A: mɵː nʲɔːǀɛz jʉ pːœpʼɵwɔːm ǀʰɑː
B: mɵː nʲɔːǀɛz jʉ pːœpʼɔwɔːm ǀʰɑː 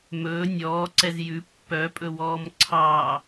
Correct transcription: A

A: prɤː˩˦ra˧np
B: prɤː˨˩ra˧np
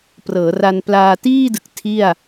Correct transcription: A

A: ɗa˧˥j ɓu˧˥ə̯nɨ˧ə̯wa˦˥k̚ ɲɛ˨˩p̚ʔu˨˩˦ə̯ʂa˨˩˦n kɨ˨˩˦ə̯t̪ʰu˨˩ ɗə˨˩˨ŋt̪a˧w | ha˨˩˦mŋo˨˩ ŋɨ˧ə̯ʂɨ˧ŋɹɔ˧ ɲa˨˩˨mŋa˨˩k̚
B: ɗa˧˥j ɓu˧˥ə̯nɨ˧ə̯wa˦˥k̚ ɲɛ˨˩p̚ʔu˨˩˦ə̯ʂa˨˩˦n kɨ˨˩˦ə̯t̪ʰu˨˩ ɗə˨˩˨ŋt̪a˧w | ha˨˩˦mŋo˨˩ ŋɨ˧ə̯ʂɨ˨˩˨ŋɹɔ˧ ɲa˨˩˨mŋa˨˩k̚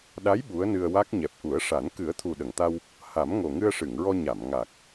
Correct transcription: B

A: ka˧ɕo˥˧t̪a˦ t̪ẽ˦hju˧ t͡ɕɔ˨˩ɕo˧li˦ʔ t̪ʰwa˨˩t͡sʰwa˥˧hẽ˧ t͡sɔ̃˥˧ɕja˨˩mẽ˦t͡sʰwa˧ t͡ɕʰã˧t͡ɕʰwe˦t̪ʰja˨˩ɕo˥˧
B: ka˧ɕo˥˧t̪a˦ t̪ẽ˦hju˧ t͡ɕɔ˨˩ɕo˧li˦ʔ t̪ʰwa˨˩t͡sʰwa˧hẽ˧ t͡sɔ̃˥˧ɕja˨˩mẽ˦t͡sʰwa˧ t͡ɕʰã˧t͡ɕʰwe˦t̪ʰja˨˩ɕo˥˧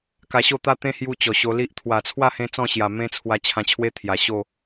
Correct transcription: A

